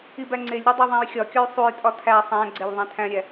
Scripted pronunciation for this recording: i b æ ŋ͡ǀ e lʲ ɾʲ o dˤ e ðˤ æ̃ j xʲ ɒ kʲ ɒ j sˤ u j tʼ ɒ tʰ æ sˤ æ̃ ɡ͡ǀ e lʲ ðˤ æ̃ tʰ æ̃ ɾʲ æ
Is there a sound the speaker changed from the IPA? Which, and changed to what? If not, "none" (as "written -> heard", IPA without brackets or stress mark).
none